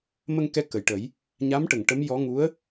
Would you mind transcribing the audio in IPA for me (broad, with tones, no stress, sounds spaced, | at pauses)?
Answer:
m ə˧ ŋ k ɛ˧ k ə˨˩ j ʈ ə˨˩˦ j | ɲ a˧˥ m ʈ ə˨˩˨ ŋ ʈ ə˧˥ m j ɔ˧˥ ŋ u˧˥ ə̯